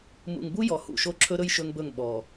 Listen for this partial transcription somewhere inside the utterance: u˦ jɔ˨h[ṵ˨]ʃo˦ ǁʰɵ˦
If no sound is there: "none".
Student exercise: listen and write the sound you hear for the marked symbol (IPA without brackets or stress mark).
ṵ˦˨